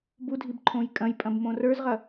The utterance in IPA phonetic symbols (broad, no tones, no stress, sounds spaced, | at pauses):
b u dʱ i b ǃʰ õ j kʼ ɐ̃ j pʼ ɐ̃ b m õ r ə˞ z ʁ ɐ